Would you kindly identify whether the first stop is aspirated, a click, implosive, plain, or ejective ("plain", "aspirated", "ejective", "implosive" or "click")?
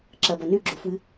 click